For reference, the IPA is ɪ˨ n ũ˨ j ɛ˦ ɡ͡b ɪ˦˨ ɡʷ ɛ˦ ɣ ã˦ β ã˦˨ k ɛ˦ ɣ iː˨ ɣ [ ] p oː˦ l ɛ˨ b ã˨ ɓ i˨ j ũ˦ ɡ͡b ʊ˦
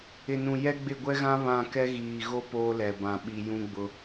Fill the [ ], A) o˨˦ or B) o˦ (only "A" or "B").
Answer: B